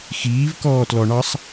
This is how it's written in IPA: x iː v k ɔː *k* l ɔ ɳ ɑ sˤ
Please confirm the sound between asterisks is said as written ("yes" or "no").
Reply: no